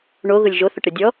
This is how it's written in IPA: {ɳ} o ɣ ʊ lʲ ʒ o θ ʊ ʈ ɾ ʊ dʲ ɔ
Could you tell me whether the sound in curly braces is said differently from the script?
no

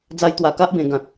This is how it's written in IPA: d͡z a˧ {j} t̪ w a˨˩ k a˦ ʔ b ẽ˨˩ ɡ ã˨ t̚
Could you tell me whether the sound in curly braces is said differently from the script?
no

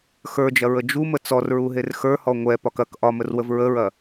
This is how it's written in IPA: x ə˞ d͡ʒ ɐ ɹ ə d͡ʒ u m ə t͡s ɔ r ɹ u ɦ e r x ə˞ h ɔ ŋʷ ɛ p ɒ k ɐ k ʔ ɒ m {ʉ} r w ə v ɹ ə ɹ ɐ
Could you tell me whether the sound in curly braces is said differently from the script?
yes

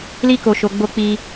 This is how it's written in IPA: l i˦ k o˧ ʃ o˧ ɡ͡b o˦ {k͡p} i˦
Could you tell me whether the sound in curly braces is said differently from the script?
no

